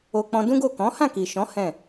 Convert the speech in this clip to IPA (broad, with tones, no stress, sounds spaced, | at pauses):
o˧ k͡p ɔ̃˧ d ũ˦ ɡ o˦˨ k ɔ̃˨˦ h ã˦˨ k i˨ ʃ ɔ̃˨˦ h ɛ̃˦˨